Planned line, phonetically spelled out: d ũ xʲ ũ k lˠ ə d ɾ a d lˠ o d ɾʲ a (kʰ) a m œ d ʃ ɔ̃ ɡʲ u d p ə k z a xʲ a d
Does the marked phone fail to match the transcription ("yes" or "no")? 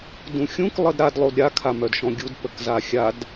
no